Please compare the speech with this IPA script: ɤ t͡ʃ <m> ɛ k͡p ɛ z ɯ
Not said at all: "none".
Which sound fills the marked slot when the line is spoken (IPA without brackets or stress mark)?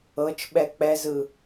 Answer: ɓ